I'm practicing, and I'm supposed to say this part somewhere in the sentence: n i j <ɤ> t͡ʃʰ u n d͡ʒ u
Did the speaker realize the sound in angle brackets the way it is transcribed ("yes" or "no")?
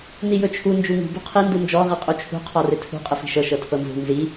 no